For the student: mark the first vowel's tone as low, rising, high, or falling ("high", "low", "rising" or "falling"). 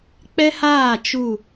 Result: high